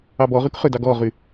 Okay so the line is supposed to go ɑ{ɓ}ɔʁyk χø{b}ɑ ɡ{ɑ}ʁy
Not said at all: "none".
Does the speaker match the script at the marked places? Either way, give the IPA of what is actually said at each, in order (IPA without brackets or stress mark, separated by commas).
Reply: b, d, ɔ